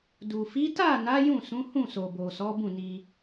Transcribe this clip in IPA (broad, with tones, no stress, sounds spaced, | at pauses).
d u˨ f i˨˦ t a˦˨ n a˨˦ j ũ˦˨ s ũ˨˦ h ũ˦˨ s o˨ b o˨ s ɔ˨˦ b ũ˦˨ n i˧